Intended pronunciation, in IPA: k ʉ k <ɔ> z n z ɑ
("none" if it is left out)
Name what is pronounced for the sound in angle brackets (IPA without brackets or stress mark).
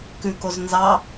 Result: o